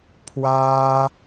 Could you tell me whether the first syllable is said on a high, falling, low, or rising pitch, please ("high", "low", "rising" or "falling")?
high